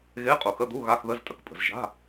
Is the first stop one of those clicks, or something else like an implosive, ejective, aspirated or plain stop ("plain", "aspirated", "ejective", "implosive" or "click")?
ejective